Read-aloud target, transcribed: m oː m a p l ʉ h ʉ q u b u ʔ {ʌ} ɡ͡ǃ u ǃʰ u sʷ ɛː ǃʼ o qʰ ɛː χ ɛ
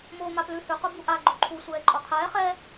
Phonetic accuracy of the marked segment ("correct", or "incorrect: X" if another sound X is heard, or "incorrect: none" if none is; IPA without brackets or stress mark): incorrect: a